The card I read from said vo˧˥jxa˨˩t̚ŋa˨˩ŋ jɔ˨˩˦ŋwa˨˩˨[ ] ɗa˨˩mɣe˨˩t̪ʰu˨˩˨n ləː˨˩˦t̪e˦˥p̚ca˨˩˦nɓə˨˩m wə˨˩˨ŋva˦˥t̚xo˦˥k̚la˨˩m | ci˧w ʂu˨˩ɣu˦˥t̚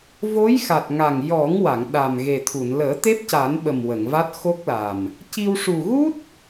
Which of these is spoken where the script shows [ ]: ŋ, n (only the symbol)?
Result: ŋ